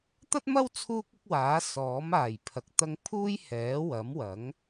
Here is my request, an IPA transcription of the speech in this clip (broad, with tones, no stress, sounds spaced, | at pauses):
t̪ ɐ˥ t̚ m ɐ˥ w t͡sʰ uː˥ k̚ ɪ˥ k̚ w aː˨˥ s ɔː˨˥ m aː˨˩ j pʰ ɐ˨˥ k̚ t̪ ɐ˧ ŋ pʰ uː˥ j h ɛː˨˥ w ɐ˨˥ m w ɐ˨˥ ŋ